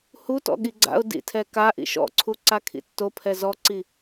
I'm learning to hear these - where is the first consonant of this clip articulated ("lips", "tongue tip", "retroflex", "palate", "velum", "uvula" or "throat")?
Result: throat